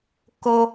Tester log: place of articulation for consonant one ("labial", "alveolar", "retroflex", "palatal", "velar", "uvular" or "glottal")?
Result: velar